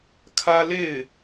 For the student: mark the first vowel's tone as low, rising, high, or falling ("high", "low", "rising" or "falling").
high